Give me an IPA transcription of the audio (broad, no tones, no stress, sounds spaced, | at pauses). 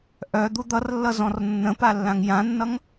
ʔ œ d̪ u d̪ ʌ r lː ʌ z ɔ̃ r nː ə̃ p a lː ã ŋ j ã nː ʌ ŋ